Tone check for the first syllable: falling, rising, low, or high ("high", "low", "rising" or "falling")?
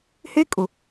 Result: high